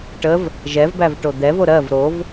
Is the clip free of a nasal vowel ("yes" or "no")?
yes